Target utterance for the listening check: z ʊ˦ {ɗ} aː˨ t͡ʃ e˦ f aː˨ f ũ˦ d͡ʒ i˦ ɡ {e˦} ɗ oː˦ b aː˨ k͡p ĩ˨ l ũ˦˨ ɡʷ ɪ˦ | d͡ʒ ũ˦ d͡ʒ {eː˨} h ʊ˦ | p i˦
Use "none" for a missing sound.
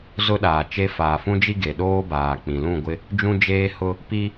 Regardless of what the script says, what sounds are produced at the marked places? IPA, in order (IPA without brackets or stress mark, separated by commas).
ɗ, e˨, eː˦